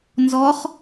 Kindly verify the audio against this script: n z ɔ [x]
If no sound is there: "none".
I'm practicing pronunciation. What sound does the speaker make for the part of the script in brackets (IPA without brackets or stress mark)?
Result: χ